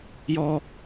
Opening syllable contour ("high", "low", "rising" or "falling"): high